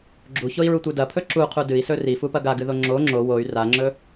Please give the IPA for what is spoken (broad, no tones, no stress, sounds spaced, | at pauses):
ɡ͡ǁ u ç o i̯ ɹ u tʷ ɨ d ɐ pʰ ɵ ǁ u qʰ u d ɨ i̯ s ɵ r i f u p ɐ ɡ a ɡ ɨ ð o ŋ͡ǁ o ŋ͡ǁ o w o y̯ r a ŋ͡ǁ ɵ